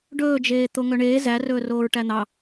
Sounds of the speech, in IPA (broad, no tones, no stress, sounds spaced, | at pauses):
ɖ ɵː d͡ʒ eː t̪ o ŋ œ ɳ eː z æ r ɵː r oː ɹ ʈ æ n̪ ɑ